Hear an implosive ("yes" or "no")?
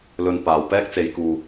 no